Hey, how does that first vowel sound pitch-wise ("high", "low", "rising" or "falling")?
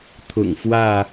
low